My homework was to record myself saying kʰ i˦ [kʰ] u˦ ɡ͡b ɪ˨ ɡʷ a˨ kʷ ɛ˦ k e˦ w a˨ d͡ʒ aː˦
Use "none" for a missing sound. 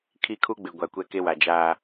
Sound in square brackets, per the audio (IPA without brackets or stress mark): kʰ